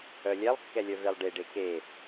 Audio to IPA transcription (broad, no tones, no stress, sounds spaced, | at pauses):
œ lʲ ɛ lˠ kː ɛ lʲ œ v e lˠ ɖ e ɖ e k e